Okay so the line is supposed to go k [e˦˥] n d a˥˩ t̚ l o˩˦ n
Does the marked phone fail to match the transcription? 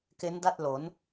no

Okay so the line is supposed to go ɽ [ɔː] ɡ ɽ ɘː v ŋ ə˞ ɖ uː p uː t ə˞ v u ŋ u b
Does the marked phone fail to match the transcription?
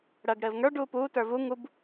yes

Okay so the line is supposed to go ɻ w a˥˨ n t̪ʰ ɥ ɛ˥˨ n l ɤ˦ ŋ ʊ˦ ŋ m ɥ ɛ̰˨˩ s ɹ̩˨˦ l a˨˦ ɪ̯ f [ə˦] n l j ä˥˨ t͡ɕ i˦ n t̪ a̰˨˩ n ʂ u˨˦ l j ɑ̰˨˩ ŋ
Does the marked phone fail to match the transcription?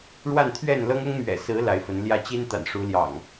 yes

